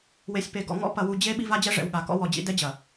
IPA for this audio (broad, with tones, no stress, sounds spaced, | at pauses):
w e˨ sʲ p e˨ ɡ ɔ̰˨ ŋ ɔ̰˦ p ɐ˨ w u˨ d͡ʑ e˦ ɓ i˦ v a˦ d͡ʑ ɛ˦ ʐ ɛ̰˨ w ɠ a˨ k ɔ̰˦ w ɔ˨ d͡ʑ ḭ˦ d ɛ˦ d͡ʑ ɐ˨